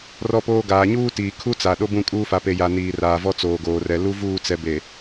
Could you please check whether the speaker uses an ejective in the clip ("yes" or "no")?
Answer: yes